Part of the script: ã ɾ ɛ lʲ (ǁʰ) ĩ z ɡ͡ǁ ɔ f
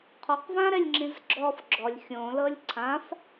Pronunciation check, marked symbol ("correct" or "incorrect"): incorrect